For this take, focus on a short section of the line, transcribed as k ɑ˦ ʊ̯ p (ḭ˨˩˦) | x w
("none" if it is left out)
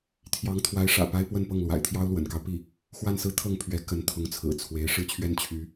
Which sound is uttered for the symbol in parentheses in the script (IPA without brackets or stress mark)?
i˥˩